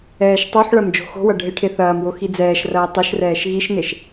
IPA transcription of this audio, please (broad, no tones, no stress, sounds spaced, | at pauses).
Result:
ɛː ʃ tˤ o ħ ɭ ɐ m d͡ʒ o̤ x o̤ w ɐ ɖʱ e ʈʰ e θ ɐː m w o x i d͡z ɛː ʃ r ɐː tˤ ə ʃ r ɛː ʃ ɣ i ʃ n e ʃ